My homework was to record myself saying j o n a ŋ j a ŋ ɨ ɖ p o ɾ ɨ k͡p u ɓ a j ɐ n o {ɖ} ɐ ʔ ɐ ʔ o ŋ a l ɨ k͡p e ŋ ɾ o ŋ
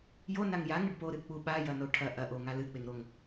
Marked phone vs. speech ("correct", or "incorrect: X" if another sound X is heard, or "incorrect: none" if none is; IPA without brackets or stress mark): incorrect: ʈʰ